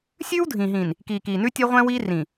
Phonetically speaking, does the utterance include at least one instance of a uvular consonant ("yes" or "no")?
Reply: yes